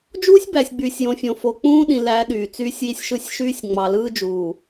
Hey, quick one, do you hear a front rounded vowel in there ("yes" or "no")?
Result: yes